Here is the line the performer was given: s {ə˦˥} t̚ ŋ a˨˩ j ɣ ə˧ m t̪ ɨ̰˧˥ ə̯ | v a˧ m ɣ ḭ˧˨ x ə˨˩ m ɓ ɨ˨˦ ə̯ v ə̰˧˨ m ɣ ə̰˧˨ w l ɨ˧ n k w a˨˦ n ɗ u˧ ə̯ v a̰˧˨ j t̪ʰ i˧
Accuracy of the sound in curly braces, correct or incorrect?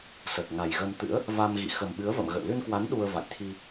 incorrect